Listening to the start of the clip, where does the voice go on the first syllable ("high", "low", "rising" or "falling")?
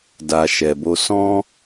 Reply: low